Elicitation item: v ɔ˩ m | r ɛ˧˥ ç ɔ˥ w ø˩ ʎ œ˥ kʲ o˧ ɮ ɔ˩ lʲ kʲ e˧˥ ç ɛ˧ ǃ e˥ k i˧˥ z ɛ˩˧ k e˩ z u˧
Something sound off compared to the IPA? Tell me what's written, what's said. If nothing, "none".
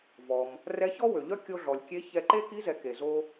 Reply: u˧ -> o˧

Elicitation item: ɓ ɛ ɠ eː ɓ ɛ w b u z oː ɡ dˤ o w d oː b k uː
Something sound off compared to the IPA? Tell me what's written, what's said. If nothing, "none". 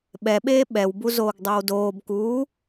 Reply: ɠ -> ɓ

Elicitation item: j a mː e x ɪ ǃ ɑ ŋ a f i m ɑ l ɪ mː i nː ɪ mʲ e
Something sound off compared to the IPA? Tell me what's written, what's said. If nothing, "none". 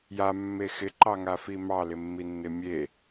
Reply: none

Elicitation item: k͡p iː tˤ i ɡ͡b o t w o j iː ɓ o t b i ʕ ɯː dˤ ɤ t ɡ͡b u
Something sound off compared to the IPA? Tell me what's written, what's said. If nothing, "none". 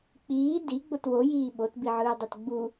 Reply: tˤ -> d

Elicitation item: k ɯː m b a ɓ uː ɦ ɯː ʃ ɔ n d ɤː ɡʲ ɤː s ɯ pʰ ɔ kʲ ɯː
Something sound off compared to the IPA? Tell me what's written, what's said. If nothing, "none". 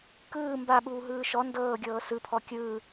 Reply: none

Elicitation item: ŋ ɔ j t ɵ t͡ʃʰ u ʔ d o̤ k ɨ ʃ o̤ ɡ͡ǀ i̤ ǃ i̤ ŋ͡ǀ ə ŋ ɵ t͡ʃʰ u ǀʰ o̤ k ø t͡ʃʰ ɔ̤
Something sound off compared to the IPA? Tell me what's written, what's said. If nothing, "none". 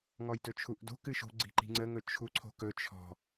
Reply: ø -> ɵ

